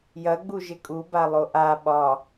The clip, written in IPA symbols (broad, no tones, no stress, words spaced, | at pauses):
jɐɡ͡buʒɪ kʼubalˠo ʔa ɓɒ